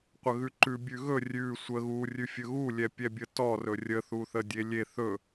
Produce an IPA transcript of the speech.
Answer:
qʷ ə ɣ ʉ ǃ ʉ bʲ ʉ ɣ ɵ rʲ ʉ sʷ ə ɣ u rʲ ʉ fʲ ɵ ɣ u lʲ ɛ pʲ ɛ bʲ ə t ɔ r ɵ rʲ ə θ u θ ə dʲ e lʲ e θ ɵ

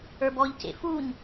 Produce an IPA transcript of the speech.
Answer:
ə˞ b ɔ ʎ c ḛ f u ɲ

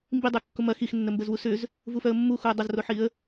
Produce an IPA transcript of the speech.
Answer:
m b i dˤ ɛ kː ʊ m ɐ x i x nː ə m b ə z w u s ʏ z | v u f œ ə̯ mː u x u ə̯ dˤ ɐ z r o ħ i ə̯

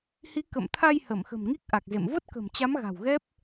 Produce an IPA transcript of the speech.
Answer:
h i˨˦ k ə̰˧˨ m t̪ʰ a˧ j h ə˧˩ m x ə̤˨˩ m ŋ i˦˥ k̚ ʔ a˨˩ k̚ z ḛ˧˨ m v o˦˥ t̚ k ə̤˨˩ m t͡ɕ a˨˦ m ɣ a̤˨˩ w ɣ ɛ˦˥ p̚

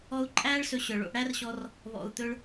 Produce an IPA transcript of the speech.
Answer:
ɔ˧ u̯ ǃʼ æː˦ ɭ s ɵ˧ ɕ œ˨ ɭ o̰˧ ʔ ɽ æ˦ r ɕ ɔ˧ r | β ɔ̰˨ u̯ t̪ ɵ˧ ɭ

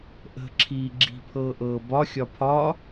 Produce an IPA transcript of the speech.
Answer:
ʔ ə̤ ǁʰ iː ɡ͡ǁ i̤ pʰ ɤː ʔ ɤː b ɒ xʲ ɒ pʰ ɒ

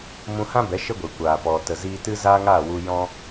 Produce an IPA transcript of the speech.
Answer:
m ũ˧ h ã˦ b ɛ˨˦ ʃ ə˦ ɡʷ e˨ kʷ aː˨ p ɔ˨ t ə˨ z iː˧ t ɨ˦ z aː˦ ŋ aː˦˨ w u˧ j ɔ̃˦

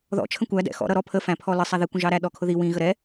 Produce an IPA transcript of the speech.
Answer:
ð ɔ̰ t͡ʃʰ ə̃ kʷ æ d ɛ̰ x ɔ̰ ɾ ʌ ɾ ɔ pʰ ə f æ̃ pʰ ɔ l ə sˤ æ ð i kʷ ə̃ ʒ ɑ ɾ æ ɗ ɔ kʰ ʊ ð i w ĩ ɣ ə ɾ ɛ

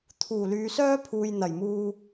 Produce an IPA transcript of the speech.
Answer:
t̪ʰ uː˨˩ l yː˨˧ s œː˥ pʰ uː˨ j n̪ ɐ˨˩ j m uː˧

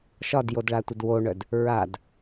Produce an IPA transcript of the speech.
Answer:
ʃ ɒ d j o d ɭ a tʷ ə d w o ɳ œ d | ɹ a d

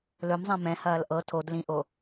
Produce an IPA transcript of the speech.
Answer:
l ɵ m zˤ ɛ̃ m ɛ̃ h ɐː l ʔ ɤ tʰ o d l ĩ ʔ o

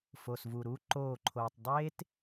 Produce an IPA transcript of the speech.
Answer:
f o˨ s v u˨ ɾ uː˦ ǃ oː˦˨ ǃʰ oː˨ tˤ dˤ eː˦ t

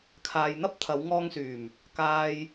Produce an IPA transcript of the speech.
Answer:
kʰ aː˨ j n̪ ɐ˥ p̚ t̪ʰ ɐ˨˧ w ŋ ɔː˧ ŋ s yː˨˩ m | k aː˨ j

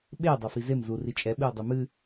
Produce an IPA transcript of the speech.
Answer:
ɓ e dˤ a f i z e m z u r i t͡ʃʼ ɛ ɓ ɨ ʊ̯ dˤ ɨ m ɨ

